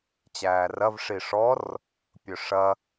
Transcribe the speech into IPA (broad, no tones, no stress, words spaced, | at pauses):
t͡ɕæːrɐv ʂiʂɔr | pʲɵʂɐ